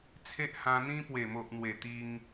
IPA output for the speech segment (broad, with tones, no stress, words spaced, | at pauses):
t͡sʰe˦ʔ hã˧n̪ĩ˦ pwe˨˩mo˨ʔ n̪we˨˩t̪i˧ŋ